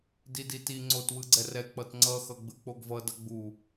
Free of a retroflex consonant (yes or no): yes